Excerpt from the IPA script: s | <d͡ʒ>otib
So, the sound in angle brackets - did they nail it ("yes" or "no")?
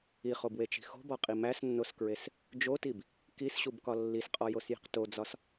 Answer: yes